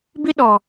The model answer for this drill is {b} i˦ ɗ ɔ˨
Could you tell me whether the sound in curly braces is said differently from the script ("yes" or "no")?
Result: no